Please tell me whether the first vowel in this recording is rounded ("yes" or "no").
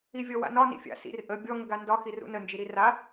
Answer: no